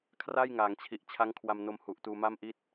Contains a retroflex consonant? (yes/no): no